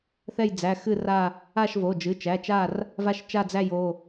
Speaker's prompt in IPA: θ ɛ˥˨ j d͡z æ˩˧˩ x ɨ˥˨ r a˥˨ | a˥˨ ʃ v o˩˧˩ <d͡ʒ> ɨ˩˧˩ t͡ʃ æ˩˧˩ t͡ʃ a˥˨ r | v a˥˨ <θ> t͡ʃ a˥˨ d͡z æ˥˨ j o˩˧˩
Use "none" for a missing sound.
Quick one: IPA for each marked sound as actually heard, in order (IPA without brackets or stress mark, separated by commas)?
d͡ʒ, ʃ